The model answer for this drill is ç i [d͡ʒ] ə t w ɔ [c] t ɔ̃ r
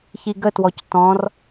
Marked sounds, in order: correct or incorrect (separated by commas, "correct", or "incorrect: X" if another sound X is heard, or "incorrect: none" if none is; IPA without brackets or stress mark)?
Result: incorrect: ɡ, correct